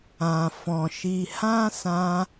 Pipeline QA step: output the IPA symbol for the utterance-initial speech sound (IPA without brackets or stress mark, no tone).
ã